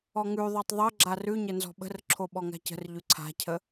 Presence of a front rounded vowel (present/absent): absent